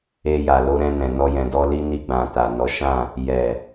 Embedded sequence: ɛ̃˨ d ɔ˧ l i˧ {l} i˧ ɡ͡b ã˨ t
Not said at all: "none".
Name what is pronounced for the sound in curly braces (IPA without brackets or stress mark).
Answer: n